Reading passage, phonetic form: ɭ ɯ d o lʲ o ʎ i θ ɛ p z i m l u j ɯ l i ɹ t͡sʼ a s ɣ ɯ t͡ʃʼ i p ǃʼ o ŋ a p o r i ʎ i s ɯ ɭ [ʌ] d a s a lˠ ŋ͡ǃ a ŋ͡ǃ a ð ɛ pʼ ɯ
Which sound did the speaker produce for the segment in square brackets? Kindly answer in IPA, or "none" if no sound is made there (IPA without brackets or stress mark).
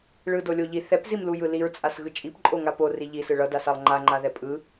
ʌ